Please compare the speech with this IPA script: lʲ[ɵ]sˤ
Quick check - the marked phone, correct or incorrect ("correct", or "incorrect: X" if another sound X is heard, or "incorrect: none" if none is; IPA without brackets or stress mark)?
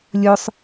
correct